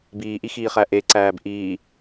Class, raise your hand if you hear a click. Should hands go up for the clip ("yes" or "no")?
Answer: yes